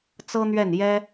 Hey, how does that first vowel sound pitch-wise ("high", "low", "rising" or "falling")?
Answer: high